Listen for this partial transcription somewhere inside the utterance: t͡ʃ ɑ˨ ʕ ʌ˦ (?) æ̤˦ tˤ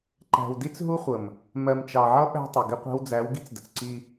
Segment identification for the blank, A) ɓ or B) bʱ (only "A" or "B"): A